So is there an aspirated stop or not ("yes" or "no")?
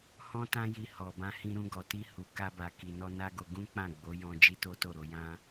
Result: no